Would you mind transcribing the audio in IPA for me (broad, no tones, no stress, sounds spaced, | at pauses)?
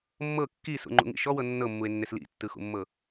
mː ɤ kː i s ṵ ŋ͡ǃ ṵ ŋ ḭ ʃ ɔ w ɤ nː ɤ mː u e̯ nː e s l ḭ tː ɯ x ṵ mː ɤ